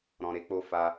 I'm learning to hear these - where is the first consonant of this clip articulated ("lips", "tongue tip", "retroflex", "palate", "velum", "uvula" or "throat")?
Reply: tongue tip